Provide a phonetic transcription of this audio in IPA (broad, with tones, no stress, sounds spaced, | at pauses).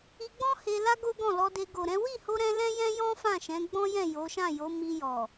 i˧ ɡ͡b ɔ̃˦ h e˧ l a˦ ɡ o˦ ɡ ɔ̃˦˨ l ɔ˧ d e˧ ɡ o˨ ɾ ɛ̃˨˦ w i˦˨ h o˧ ɾ ɛ̃˧ l ɛ̃˦ j ɛ̃˦ j ɔ̃˦ f ã˦˨ ʃ ɛ̃˨˦ ɡ͡b ɔ̃˦ j ɛ̃˦˨ j o˨˦ ʃ ã˦˨ j o˨˦ m i˧ j ɔ˨